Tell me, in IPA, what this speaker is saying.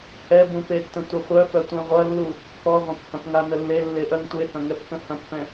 hɛbũpetːə̃ tʷəχʷœ fœtʷɛ̃ʁʷɐlːu | kɔʁʷɐ̃phɐ̃pŋa nəlːe lːeʔœŋtʷehɐ̃ ŋɛpkə̃hɐ̃pfɛ̃

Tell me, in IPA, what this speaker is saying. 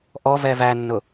ʔɔvɛ vænːʊ

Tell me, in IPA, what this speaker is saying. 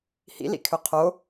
hḭlḭkʰø qʰo

